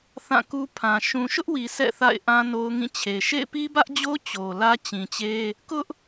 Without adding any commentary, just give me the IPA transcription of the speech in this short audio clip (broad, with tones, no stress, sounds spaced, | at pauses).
θ ã˦˨ k u˦ pʰ ã˨ ʃ ũ˨ ʃ ʊ˦ ʔ w i˨ sʰ ɛ̰˦˨ θ a̰˦˨ ɪ̯ ʔ ã˦ n o˦ ʊ̯ ŋ ĩ˦˨ t͡ɕʰ e˨ ʃ ḛ˦˨ ɪ̯ p i˦ b ä˦ ʔ d͡ʑ o˦ t͡ɕ o˨ l ä˦ t͡ɕ ĩ˨ t͡ɕ e˦ | k ʊ˦ ʔ